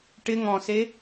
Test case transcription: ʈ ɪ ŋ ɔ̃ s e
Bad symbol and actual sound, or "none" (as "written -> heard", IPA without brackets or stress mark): none